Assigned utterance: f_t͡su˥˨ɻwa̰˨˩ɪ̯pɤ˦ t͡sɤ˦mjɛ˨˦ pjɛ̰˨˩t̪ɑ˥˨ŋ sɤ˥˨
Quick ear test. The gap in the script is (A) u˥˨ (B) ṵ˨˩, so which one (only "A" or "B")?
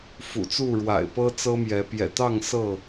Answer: B